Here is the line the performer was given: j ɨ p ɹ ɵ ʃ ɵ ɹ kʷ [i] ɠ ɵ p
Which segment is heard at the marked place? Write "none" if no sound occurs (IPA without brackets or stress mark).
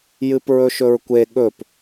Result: e